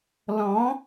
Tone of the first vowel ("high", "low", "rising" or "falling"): rising